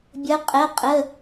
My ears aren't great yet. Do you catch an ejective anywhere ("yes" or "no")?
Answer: yes